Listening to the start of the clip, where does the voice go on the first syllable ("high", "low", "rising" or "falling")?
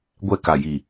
falling